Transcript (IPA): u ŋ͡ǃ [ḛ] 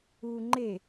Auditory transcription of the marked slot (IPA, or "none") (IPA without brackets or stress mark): e